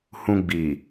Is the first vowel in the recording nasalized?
yes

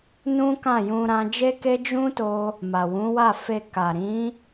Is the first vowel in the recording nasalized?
yes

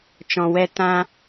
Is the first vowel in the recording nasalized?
yes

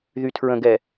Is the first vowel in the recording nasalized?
no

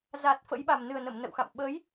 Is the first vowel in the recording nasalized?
no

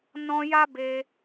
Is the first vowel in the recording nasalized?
yes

